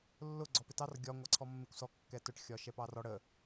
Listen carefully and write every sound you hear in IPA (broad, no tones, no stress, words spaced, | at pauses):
lːʊ ɡ͡ǀɔpɪtɑr ɡʲɒ ŋʷɑǀʰɔmːɪkʷsɔ kːɛtʊʈ xʲɒʃɛpɑrɔ ɽə